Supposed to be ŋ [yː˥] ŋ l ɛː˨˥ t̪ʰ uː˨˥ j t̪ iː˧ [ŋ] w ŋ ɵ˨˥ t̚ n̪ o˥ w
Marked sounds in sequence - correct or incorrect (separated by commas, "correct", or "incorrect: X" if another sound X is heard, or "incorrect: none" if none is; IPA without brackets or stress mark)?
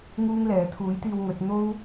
incorrect: uː˥, incorrect: none